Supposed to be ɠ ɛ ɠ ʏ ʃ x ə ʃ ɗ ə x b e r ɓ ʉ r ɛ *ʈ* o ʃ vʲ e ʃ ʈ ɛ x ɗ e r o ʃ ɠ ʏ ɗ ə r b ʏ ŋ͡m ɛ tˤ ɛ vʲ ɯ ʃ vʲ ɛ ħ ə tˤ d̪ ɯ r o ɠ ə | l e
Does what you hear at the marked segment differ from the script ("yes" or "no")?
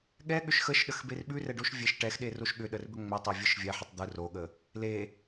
yes